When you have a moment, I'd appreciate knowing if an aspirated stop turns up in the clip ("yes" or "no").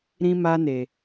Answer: no